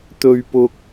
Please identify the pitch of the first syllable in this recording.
high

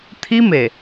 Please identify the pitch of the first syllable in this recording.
high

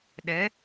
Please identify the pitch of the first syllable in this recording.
rising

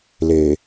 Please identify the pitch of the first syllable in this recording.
low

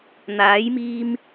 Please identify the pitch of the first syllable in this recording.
rising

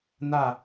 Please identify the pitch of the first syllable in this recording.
falling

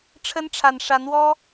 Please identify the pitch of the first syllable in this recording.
high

